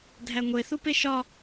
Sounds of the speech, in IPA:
dʱæŋʷeθupe ʃɒ

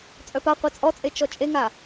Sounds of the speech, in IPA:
t͡sʼœpaqʷe t͡sʼɔt͡sʼe t͡ʃɔt͡ʃʼeŋa

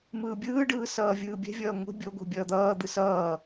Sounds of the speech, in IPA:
mɯːbʲɯːɖɯː sʌːvʲɯːbʲɛ̤vʲʌː ŋʷe̤ bʲoɡʷe̤ bʲʌːd̪ʌːd̪ɯ sʌː

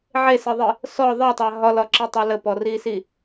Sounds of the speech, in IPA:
ʕeseðˤi | sɔ ðˤɜtˤa ɦɒlɒǁetˤæ ləpɔrisi

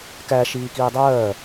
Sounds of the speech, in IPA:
kæ ʃiːkiːdˤɜː

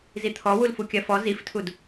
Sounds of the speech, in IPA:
zit̪ʰɔ wulfukʲɜfɔ ziftʰud

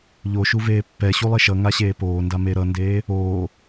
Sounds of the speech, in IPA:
ʎoʃu veːpːɛɕu lˠeʃʌŋa ɕeːpoːnda meɾʌndeː | oː

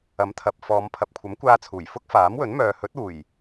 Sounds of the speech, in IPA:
ɐ˨˥mt̪ʰɐ˨p̚ fɔː˨˧m pʰɐ˨p̚kʷʰɐ˨˥mkʷaː˧ t͡sʰuː˨˩jfʊ˥k̚faː˨˥mwɵ˨˥n mœː˨ hɵ˨˥t̚uː˨˩j

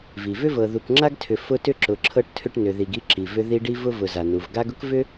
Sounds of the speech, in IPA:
vi˩vʏ˥vɤ˨ ðu˨kŋ͡ǁa˥ɡtʰʏ˨ fʊ˦ tʏ˥ǁʊ˨ǁʰɤ˦ʈ tʰʏ˦ʈnʏ˨ði˨ɡ i˦ǁi˩ vʏ˦ ði˦ɖi˥vʊ˥ vʊ˨za˩nu˩v ɡa˦ɡʊ˥kvʏ˥

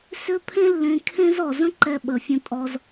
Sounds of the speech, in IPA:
sʏ˧ pʰẽ˦lːẽ˧ kʰẽ˦zɔ˨ zə̃˦ǃɛ˧ ɓə˨fʲə̃˧ tʼɔ˧z

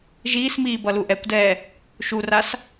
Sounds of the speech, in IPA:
ʒiːsmiː bʌluʔɛkʷdɛː | ʃuras

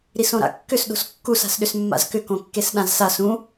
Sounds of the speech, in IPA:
ɾisõɾa̰kːʏs ɗo̤skːus a̤sɗʏsmːa̰zkʏ kõkːesɗãzsas ũ

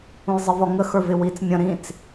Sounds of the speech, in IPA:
ũjzˤɪvɔŋə xə˞vɪwit͡s mʲə̃ ɾĩt͡s

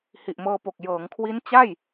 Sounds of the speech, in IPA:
hi˨˩ʔmɤː˧po˨˩k̚ jɤː˩˦ŋkʰwi˦˥n t͡ɕa˥˩j

